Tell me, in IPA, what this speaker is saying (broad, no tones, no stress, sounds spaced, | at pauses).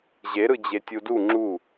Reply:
ʑ e ɾ ɯ d͡ʑ e tʲ u d u ŋ͡ǁ u